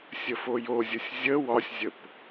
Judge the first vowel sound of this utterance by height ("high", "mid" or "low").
mid